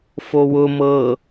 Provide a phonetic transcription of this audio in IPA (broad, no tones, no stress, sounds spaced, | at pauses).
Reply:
f o w ʊ m ɤ